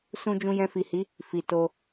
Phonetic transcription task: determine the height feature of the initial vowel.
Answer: high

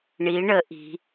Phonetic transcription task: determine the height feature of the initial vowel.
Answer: high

